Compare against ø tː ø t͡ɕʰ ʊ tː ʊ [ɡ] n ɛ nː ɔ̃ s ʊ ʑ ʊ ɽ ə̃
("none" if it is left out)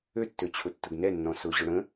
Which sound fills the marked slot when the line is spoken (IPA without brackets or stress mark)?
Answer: ɡ